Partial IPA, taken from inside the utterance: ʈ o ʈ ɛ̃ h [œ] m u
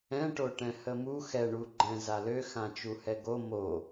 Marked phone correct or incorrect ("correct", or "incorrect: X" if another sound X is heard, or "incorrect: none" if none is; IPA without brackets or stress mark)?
incorrect: ə